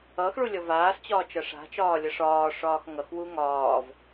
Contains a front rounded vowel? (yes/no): no